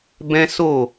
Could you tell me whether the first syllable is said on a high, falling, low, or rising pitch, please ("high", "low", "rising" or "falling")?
high